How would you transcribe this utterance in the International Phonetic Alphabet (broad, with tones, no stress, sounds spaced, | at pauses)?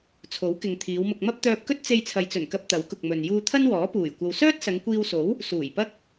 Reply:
t͡sʰ o˨˥ w k ɪ˨ ŋ t̪ʰ iː˨˧ w m ʊ˧ k̚ m ɐ˥ p̚ t̪ œː˧ p̚ k ɵ˥ t̚ t͡s e˧ j t͡sʰ ɐ˨ j t͡s ɵ˨˩ n k ɐ˧ p̚ t̪ ɐ˨˥ w k ʊ˨ k̚ m ɵ˨ n j uː˧ t̪ʰ ɐ˥ n w ɔː˨˥ p uː˨˩ j kʷ ɐ˧ w s œː˥ t̚ s ɐ˨˧ ŋ kʷ iː˧ w s o˨˥ w | s uː˨˩ j p ɐ˥ k̚